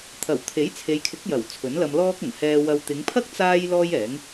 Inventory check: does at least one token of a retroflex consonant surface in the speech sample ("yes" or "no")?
no